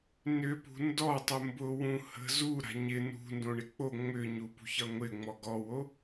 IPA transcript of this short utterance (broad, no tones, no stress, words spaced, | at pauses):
nʏpṳ ndɔtˤʊ mbʊwũ hə̤zu ɾa̤ɲɪ nṳndõ ɳɪk͡po ŋ͡mʏɲu pṳçʌŋʷɪŋ͡mɔ ɡɔwo